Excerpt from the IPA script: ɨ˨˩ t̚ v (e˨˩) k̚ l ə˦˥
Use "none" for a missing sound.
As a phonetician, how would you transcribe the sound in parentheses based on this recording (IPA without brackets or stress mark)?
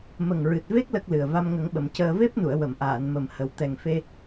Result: e˦˥